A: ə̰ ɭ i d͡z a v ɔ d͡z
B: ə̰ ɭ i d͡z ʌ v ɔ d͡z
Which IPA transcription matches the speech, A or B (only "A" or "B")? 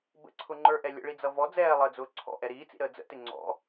B